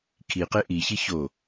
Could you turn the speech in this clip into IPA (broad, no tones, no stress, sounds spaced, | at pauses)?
kʰ i q e ʔ i ç i ç o